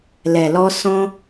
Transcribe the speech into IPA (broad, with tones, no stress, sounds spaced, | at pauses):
l ɛ˨ l ɔ˧ s ɔ̃˧